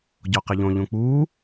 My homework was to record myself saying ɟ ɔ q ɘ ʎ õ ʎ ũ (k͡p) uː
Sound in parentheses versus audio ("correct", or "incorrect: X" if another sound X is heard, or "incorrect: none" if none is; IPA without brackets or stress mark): correct